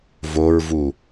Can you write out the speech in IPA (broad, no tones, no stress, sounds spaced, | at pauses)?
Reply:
v o ɹ v u